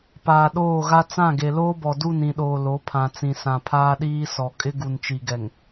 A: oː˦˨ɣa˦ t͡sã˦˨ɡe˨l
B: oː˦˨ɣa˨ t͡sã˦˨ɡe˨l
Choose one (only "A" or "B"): A